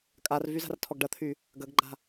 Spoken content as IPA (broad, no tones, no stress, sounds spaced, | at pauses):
kʼ a r v y z a̤ r tʰ ɔ ɡ ɖ ɐ t̪ʰ y | ɡ ɐ ɡ ɡ͡ǃ a̤